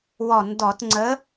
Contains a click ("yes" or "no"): yes